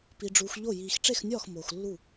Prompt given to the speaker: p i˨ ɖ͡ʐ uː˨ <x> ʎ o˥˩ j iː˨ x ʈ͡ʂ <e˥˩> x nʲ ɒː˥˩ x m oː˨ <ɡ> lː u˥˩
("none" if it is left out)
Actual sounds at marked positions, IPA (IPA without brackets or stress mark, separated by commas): x, e˥˩, x